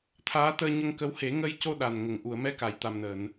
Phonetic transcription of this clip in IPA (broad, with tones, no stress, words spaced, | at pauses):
t̪ʰaː˧˥t̪əː˧ɲə˧ŋkə˧˥w he˨˩˦ŋə˧jco˧ ɗa˨˩nŋə˨˩ŋ ʔu˨˩˨ə̯mɛ˧ ka˨˩˨jt̪a˨˩mnəː˨˩˨n